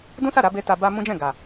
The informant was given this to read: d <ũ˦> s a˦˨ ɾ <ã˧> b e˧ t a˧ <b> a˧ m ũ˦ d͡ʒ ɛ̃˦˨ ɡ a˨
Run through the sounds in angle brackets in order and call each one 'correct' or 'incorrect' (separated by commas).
correct, incorrect, correct